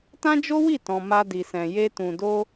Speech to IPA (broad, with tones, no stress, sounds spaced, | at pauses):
t ã˦ d͡ʒ o˦ w i˦˨ t ɔ̃˨ m a˧ d i˨ s ɛ̃˨ j e˧ t ũ˨ d o˧